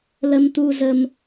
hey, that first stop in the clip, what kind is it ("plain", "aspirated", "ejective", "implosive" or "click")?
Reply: plain